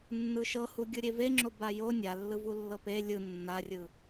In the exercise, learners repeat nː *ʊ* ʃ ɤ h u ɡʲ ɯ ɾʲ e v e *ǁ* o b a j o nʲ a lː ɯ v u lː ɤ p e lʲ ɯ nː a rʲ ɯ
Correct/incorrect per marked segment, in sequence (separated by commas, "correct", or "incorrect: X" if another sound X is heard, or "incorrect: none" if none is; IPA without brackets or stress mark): incorrect: ɯ, incorrect: ŋ͡ǁ